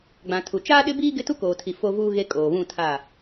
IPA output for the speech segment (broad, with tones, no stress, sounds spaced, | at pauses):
ɡ͡b ã˨ tʰ u˨ t͡ʃ aː˦ ɗ ɪ˦ b iː˦ ɡ ɪ˦ t u˦ k oː˨ tʰ i˨ f o˦ v uː˦ ɣ e˦ kʼ oː˨ β ũ˦˨ tʰ a˦˨